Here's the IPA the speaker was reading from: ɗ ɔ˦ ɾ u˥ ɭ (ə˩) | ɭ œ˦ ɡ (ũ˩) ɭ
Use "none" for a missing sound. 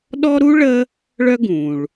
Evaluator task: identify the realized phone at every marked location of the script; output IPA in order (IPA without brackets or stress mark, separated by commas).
ə˦, ũ˩